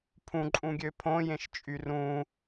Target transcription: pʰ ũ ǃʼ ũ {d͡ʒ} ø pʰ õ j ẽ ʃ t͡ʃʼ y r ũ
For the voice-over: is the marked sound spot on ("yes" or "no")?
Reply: no